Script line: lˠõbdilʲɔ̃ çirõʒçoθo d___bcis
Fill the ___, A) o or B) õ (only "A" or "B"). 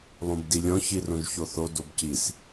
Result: A